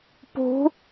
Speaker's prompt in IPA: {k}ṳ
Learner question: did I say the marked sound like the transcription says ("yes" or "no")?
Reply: no